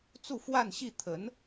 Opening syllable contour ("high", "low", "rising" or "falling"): falling